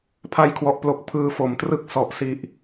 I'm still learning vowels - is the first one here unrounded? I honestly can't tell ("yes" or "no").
yes